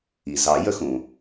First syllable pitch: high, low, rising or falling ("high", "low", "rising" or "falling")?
low